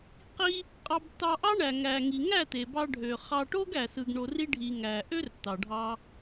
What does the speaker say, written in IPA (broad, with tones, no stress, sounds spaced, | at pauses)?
q i˧ | qʼ ɑ˧ b tː ɑ˧ ʔ ɑ˦ ɳ æ˨ ŋ æ˨ ŋ i˨ ŋ æ˦˨ t e˨ b ɑ˧ ɖʱ ø˨ χ ɑ˧ ʈ o˦ ɡ æ˨ s ɯ˧ ɡ ɳ o˧ r i˦ ɖʱ i˧ ŋ æ˨ ʔ ø˦ r tː ɑ˨ ɖʱ ɑ˧